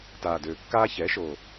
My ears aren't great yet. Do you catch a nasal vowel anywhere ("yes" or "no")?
no